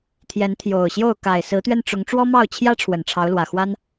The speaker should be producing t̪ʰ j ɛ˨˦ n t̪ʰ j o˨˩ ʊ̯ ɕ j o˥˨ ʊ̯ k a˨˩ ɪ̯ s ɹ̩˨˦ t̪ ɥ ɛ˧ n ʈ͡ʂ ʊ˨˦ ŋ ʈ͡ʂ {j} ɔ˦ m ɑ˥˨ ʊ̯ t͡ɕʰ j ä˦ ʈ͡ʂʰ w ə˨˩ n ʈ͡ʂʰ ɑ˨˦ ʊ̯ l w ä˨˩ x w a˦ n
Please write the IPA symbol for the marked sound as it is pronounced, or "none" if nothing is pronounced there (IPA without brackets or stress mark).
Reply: w